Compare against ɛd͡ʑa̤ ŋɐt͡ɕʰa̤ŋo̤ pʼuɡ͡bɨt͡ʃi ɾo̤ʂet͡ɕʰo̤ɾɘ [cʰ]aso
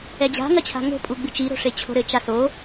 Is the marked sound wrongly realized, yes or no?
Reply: yes